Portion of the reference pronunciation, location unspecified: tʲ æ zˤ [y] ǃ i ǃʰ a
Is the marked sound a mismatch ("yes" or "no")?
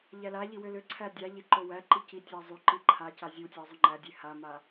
no